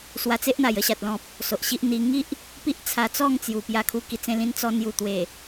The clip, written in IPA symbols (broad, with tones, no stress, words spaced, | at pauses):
swa˧t͡se˦ʔn̪a˨˩j ə˥˧ɕa˨t̚lɔ̃˨p̚ | so˨ʔɕi˦ʔ n̪i˧ ŋi˦ʔ | pi˦ʔt͡sʰa˧t͡sɔ˥˧ŋ t͡sju˨˩pja˧kʰu˧ ki˨˩t͡sẽ˧lĩ˧n t͡sɔ˧nju˨˩ t̪we˨˩